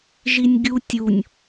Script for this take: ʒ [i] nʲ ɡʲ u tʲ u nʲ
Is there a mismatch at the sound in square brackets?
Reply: no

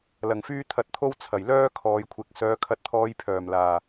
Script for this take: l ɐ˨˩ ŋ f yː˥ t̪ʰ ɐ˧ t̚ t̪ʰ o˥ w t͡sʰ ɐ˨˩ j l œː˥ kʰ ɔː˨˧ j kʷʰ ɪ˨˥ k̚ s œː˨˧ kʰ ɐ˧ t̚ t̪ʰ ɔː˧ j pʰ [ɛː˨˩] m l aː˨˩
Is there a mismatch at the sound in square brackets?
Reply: yes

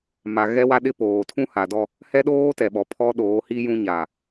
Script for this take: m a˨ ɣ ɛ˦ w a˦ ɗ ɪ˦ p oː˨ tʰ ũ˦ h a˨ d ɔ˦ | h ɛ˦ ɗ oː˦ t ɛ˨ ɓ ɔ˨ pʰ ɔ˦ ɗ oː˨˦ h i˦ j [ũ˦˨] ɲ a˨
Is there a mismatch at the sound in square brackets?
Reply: yes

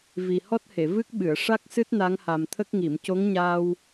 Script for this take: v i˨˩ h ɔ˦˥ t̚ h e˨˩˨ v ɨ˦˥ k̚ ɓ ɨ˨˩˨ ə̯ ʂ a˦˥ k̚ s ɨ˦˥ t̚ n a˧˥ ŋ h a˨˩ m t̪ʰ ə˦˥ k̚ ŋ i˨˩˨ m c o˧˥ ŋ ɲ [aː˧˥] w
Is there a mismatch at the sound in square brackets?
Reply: yes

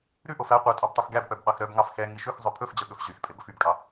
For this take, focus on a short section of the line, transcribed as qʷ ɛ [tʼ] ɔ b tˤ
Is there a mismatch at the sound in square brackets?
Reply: no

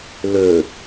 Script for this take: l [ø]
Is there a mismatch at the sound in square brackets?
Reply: no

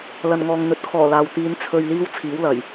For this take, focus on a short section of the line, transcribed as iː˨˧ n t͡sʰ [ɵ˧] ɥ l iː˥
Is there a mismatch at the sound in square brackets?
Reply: no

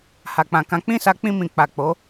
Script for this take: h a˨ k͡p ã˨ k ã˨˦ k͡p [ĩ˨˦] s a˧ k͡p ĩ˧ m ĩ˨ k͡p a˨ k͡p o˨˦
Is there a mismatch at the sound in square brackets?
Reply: yes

